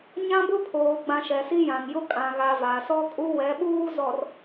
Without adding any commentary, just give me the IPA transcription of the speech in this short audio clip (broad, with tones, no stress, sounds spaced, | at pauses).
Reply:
ɲ ã˦ b ʊ˦ pʰ oː˨ ɡ͡b ã˨ ʃ ɛ˨ s i˦ j ã˨ ŋ j ʊ˦ kʼ ã˨ ɣ a˨ v a˨ s ɔ˦ kʼ u˦ w ɛ˨˦ ɓ uː˦ z ɔ˨ r